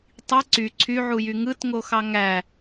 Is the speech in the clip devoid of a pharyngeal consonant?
no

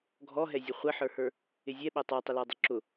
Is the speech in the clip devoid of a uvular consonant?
no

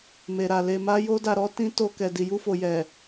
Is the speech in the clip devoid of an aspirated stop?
yes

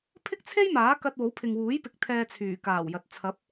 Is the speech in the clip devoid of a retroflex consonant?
yes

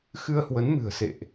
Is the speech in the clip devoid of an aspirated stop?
yes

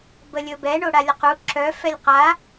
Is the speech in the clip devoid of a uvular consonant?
no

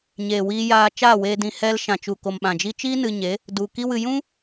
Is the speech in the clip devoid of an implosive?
no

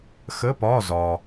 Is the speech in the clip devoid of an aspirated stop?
yes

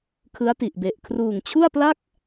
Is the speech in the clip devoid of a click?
yes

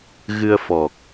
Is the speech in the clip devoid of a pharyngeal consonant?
yes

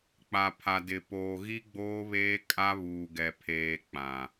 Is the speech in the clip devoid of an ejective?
no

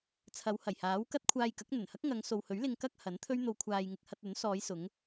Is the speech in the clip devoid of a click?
yes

